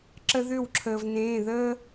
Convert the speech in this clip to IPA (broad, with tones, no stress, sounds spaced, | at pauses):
ǁ ə˦ ð ʏ˥˩ w ǁʰ əː˩ v n ẽː˩˧˩ ð əː˦